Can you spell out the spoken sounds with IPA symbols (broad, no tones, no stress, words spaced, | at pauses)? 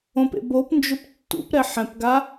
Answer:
õpḛ bopnd͡ʒʊp tːṵpɾɛ ħɛ̃pɡa